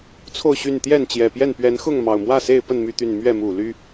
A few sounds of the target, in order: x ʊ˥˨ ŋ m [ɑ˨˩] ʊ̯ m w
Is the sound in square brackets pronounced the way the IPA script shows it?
yes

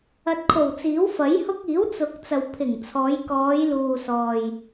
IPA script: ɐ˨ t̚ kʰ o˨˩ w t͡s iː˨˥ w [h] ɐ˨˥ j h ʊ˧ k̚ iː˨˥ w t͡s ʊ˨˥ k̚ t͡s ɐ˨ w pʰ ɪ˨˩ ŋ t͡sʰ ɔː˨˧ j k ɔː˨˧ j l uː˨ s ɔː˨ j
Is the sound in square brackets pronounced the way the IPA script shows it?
no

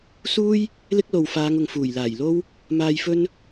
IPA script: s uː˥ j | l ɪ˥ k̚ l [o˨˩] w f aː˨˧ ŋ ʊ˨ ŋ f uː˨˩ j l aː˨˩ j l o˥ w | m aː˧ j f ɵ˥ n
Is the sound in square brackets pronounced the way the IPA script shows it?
no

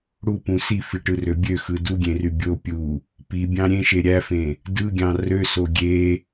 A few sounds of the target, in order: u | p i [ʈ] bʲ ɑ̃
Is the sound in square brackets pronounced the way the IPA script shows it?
no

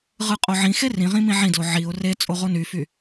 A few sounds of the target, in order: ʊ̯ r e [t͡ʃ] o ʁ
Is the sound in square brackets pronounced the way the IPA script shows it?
no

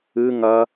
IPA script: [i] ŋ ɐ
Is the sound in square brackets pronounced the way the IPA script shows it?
no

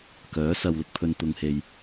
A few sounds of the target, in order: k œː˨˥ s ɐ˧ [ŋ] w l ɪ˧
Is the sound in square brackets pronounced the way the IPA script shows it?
no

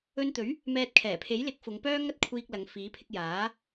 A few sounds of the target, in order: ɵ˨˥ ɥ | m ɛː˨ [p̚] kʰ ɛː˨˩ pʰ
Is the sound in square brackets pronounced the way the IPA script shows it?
no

